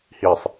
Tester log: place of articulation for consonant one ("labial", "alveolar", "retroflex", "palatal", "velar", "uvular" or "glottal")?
glottal